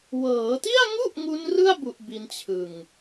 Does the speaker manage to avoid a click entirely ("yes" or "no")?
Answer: yes